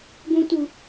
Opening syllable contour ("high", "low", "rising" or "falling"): high